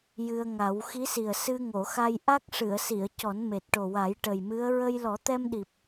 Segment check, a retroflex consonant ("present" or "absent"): present